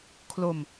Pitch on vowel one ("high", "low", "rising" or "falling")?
low